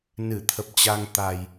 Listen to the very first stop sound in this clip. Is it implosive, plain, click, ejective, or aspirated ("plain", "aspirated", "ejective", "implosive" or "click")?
aspirated